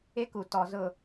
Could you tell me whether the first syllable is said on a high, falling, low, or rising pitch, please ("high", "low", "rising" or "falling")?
high